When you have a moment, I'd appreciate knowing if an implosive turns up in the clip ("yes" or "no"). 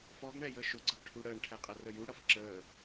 no